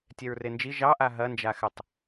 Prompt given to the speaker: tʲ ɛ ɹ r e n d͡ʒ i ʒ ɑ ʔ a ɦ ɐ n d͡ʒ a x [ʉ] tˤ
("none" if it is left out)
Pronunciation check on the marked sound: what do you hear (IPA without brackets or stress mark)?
ɘ